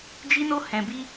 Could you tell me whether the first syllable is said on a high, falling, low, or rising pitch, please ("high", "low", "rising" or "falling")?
high